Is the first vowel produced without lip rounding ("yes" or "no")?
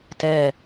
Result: yes